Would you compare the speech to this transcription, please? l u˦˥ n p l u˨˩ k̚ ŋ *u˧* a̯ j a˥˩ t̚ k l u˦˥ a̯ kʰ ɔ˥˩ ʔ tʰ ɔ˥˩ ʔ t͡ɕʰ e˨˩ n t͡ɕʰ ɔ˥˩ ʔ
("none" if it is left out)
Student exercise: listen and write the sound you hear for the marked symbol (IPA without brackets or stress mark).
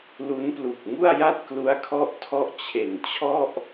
u˥˩